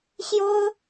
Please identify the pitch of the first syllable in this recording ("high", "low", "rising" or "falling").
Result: high